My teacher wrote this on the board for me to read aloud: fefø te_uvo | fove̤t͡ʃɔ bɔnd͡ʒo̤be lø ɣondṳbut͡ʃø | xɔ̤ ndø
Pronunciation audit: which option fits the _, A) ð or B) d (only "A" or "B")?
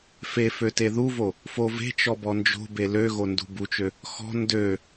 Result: A